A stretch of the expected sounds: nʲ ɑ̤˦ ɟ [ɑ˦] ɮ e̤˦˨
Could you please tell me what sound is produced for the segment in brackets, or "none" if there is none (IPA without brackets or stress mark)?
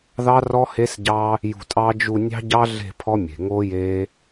ɑ˦